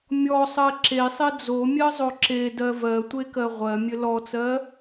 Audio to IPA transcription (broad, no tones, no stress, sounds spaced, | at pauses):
mʲ ɔ sˤ ɜ ǁ e sˤ e d͡z o mʲ ɜ zˤ o ǁ e d ɜ v ɜ tʷ e k ɜ ʁʷ ɜ mʲ ɘ l ɔ t͡s ɜ